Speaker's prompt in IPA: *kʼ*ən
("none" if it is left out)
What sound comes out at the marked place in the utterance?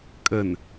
kʼ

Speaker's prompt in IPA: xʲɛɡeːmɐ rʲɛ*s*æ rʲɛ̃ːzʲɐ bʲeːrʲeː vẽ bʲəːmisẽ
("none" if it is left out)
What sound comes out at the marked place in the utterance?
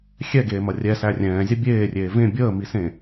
s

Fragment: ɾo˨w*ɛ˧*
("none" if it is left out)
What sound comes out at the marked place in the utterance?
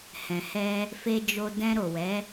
ɛ˨˦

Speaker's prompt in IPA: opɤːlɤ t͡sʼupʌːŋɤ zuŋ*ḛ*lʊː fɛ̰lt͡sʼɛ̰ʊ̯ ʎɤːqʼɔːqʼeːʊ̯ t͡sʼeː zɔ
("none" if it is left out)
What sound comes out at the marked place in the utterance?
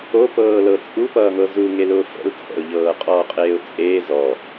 e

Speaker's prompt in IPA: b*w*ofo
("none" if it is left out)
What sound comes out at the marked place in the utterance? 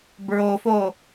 ɹ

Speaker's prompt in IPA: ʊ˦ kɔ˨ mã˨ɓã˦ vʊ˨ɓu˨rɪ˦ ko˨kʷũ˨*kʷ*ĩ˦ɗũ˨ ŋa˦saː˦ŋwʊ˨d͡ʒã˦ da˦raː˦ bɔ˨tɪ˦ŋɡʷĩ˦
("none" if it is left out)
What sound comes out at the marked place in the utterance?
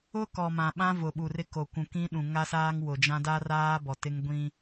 k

